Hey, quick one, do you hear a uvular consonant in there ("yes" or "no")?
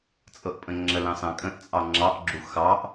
no